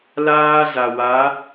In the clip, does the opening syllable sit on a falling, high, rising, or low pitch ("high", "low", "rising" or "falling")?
high